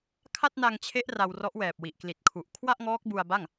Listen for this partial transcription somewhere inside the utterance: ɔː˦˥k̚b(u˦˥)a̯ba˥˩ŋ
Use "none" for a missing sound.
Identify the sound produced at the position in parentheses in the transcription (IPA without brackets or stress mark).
u˧